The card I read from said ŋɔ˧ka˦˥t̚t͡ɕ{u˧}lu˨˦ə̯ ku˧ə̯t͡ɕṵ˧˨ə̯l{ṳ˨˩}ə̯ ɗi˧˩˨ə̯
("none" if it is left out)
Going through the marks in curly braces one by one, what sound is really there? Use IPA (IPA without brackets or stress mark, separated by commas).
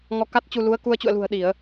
u˧, ṳ˨˩